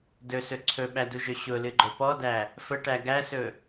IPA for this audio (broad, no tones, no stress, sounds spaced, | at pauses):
d ɵ s ɵ ǀʰ ɵ ɓ æ d u ʒ ɵ ɕ ʊ l ɨ ɡ͡ǃ ɵ p ɔ d æ | f ə ʈ æ ɡ æ s ɵ